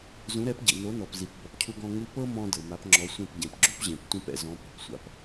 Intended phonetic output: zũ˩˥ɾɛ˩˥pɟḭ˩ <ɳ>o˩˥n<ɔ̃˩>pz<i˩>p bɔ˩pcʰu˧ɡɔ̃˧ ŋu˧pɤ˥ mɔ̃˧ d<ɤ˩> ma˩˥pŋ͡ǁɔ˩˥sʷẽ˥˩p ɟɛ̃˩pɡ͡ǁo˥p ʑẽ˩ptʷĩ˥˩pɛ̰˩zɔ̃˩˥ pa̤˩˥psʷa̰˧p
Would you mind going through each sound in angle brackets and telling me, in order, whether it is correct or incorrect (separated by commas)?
incorrect, incorrect, correct, correct